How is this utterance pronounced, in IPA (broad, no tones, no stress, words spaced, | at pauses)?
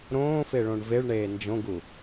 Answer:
ɾõːfeɭõɳ veɭɳeː nd͡ʒõɡu